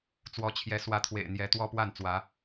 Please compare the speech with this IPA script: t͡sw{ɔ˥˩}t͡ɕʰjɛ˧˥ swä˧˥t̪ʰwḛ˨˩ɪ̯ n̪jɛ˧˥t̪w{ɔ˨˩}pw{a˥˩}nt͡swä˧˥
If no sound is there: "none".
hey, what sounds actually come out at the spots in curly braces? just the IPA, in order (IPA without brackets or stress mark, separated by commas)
ɔ˧˥, ɔ˥, a˥˩